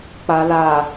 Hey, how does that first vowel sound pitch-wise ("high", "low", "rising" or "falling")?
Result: low